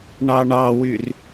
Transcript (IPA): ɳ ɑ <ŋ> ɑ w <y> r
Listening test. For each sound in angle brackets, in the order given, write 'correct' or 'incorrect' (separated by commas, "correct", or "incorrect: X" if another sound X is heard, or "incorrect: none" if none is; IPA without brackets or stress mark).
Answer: incorrect: ɳ, correct